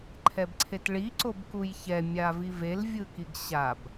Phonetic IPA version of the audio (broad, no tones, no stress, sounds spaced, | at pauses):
ǃʰ ɛ b ǀʰ e t ɭ i ǀ o b k u j ç ɛ mʲ a v i v e l vʲ ɯ k i ɡ ɕ a b